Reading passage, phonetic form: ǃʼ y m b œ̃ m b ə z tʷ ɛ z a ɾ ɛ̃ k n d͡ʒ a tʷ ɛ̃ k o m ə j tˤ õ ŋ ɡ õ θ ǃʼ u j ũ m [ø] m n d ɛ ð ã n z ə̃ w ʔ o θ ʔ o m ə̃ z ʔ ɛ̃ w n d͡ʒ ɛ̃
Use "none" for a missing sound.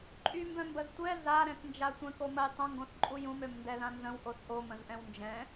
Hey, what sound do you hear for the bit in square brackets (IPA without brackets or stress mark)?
ø